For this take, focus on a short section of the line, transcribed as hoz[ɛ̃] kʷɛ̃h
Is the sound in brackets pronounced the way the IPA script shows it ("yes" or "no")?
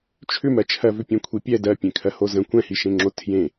no